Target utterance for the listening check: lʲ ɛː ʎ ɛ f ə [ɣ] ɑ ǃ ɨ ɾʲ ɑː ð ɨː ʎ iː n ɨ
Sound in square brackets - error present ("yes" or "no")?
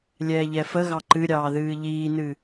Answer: no